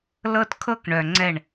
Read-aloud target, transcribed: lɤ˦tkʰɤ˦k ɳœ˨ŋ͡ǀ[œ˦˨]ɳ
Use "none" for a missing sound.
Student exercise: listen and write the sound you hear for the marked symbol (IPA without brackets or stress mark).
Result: ɛ˦˨